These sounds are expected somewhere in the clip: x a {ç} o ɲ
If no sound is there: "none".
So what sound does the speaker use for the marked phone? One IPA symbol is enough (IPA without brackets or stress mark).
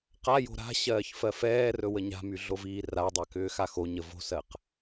x